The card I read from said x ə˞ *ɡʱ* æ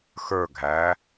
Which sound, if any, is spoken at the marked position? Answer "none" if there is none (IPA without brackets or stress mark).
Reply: ɡʱ